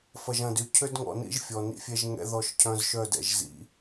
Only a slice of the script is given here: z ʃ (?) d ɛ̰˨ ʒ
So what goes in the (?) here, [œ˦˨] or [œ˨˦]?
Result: œ˦˨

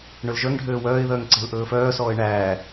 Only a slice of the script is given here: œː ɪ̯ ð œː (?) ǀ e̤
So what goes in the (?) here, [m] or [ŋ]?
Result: ŋ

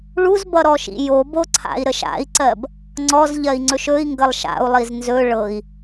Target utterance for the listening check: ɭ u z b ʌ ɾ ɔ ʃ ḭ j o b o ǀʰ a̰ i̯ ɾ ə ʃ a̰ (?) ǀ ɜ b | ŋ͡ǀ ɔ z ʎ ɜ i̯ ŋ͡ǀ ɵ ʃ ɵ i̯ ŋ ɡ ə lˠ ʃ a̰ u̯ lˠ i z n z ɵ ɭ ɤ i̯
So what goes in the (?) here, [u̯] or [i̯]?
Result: i̯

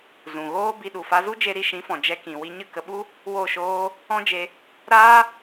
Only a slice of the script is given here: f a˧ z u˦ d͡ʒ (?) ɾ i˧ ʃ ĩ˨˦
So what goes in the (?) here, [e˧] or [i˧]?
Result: e˧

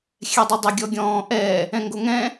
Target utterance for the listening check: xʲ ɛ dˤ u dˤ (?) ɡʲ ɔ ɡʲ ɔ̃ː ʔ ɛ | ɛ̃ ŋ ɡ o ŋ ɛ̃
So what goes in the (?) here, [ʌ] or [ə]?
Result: ə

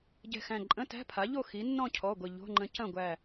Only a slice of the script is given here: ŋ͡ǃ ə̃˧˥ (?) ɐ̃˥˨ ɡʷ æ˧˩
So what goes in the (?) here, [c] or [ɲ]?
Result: c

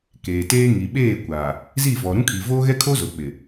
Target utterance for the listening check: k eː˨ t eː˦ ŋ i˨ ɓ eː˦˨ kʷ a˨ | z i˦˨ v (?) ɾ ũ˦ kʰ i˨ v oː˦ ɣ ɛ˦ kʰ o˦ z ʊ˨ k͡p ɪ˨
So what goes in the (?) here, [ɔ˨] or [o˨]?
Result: ɔ˨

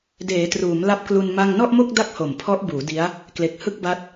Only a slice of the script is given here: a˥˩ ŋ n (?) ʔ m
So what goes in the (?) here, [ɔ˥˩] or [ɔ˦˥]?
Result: ɔ˥˩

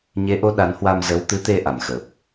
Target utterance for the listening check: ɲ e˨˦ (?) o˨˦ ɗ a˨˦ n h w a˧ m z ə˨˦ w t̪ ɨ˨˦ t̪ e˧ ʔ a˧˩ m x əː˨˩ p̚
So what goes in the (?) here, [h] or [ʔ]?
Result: ʔ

